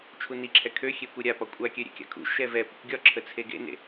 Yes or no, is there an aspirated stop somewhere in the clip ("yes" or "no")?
yes